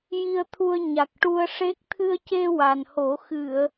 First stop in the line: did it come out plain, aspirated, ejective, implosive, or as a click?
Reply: aspirated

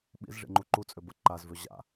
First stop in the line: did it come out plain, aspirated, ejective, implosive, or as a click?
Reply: implosive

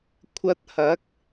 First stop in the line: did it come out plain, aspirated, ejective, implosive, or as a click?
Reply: aspirated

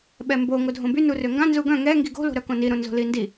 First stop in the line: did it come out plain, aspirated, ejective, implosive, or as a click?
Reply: implosive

